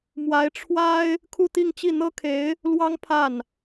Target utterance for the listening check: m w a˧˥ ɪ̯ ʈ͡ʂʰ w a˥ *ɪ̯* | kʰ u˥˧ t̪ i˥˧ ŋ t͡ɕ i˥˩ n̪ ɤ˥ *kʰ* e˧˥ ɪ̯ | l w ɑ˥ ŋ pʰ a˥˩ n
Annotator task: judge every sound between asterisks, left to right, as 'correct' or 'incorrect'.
correct, correct

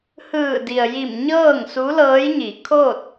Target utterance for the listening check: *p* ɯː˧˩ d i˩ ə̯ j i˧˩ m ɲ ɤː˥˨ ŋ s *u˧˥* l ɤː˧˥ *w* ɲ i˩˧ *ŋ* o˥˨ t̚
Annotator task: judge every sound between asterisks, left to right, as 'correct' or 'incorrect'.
incorrect: h, correct, incorrect: j, incorrect: kʰ

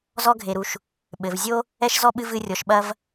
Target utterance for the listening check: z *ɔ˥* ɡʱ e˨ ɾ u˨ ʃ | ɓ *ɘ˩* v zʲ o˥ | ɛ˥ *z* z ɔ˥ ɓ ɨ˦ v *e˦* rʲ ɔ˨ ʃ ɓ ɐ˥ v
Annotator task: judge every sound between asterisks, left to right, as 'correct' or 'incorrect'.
correct, correct, incorrect: ʃ, incorrect: ɨ˦

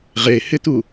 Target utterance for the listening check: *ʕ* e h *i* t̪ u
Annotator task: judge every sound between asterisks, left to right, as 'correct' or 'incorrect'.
incorrect: ʁ, incorrect: ɪ

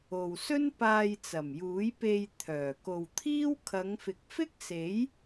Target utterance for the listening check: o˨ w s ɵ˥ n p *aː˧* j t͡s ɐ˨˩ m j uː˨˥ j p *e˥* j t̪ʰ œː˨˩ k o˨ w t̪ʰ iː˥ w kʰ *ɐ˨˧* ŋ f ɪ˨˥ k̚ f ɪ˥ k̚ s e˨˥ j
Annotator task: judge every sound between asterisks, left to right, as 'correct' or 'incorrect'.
correct, incorrect: e˧, correct

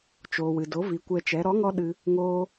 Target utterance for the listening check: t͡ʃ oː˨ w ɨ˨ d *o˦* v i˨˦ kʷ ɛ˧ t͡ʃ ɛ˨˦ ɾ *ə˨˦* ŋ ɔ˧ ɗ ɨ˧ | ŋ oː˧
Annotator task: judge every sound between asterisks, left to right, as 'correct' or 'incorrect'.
incorrect: o˨˦, incorrect: ɔ˨˦

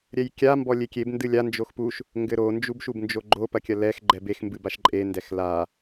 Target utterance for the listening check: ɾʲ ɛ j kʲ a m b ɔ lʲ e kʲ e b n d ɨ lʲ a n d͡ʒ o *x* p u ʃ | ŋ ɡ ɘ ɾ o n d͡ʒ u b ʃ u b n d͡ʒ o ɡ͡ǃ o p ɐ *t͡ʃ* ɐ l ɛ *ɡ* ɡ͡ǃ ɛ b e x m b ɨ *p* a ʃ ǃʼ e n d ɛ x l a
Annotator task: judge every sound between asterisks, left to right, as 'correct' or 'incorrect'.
correct, incorrect: kʲ, incorrect: x, incorrect: b

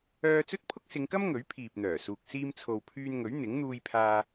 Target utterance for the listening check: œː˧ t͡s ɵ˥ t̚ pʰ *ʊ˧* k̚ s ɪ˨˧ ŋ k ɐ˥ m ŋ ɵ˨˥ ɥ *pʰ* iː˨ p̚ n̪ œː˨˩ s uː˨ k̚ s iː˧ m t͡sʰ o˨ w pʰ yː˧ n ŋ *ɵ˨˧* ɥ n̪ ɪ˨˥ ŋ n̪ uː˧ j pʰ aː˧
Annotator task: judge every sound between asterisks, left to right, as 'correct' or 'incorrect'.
incorrect: ʊ˥, correct, incorrect: ɵ˨˥

